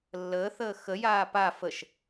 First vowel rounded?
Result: no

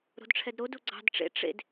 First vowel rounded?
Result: yes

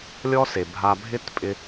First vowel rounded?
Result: yes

